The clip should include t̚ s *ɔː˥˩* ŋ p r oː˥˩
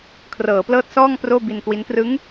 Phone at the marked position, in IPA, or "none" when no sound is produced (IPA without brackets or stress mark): ɔː˥˩